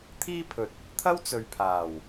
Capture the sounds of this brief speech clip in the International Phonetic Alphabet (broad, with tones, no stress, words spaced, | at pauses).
t̪ʰiː˥pʰɵ˨t̚ | t̪ʰɐ˥wt͡sɵ˨ɥpʰaː˨˩w